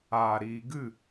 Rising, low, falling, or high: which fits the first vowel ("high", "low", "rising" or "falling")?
low